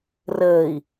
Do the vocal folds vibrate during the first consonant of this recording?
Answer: yes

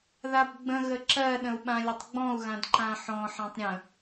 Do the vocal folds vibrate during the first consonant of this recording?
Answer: yes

